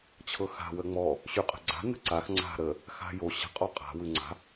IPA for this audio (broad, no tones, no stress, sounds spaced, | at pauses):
t͡ɕʰ ɤ x a̤ w ə ŋ͡m ɔ | ɕ y qʼ ə̤ ɡ͡ǀ a̤ n ə̤ ǀ a x ŋ͡ǀ a̤ ɾ ə | x a̤ j o ɕ ə̤ qʼ ɔ qʼ a̤ w ʉ ŋ͡ǀ a̤